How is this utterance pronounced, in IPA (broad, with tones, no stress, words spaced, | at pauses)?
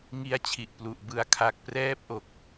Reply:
ŋi˦˥a̯t͡ɕʰi˨˩ʔplu˨˩ʔbɯ˧a̯ kʰa˨˩k̚prɛː˦˥p̚ʔo˨˩k̚